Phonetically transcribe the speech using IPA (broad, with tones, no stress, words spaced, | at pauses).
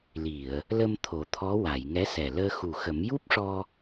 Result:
li˨˩˨ə̯ | lə˧m t̪ʰo˨˩˦t̪ʰɔ˧˥wa˨˩˨j ŋɛ˧˥sɛ˨˩ləː˧ xu˨˩xə˨˩˦m ju˦˥p̚ʂɔ˧